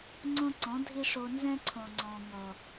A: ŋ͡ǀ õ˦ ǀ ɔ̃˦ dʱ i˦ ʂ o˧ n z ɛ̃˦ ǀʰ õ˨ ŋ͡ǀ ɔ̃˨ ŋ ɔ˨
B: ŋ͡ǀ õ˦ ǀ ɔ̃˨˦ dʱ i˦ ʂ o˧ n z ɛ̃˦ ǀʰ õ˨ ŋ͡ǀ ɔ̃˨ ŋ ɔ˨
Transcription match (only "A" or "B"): B